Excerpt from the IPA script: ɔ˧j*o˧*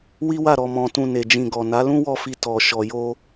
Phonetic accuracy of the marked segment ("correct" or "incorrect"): incorrect